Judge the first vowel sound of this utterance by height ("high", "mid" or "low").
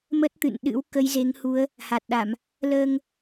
mid